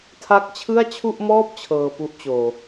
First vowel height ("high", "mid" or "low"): low